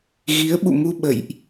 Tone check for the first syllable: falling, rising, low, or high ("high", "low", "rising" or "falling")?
rising